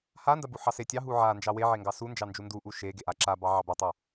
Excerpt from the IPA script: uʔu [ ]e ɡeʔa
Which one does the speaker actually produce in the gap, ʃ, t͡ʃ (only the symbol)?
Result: ʃ